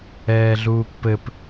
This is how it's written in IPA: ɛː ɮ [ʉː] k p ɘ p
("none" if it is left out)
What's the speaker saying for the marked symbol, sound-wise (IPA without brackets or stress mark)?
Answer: uː